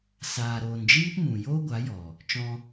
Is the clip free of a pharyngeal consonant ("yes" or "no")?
yes